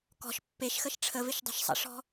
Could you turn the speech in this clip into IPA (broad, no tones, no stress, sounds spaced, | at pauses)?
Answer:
k ɔ̤ ʃ pː e ʃ x ə ʃ ʈ͡ʂʰ ə v ɪ ʃ dˤ o̤ ʃ sˤ ə̰ ʂ ɔ̤